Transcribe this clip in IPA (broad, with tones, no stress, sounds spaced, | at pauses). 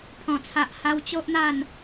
pʰ ɔ̃˨˩ t͡sʰ a˨ ʔ h a˧ w t͡ɕ o˦ ʔ n̪ a˥˧ n